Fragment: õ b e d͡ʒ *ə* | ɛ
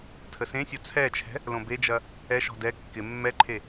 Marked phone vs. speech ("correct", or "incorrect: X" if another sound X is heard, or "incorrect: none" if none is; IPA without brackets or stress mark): incorrect: ɐ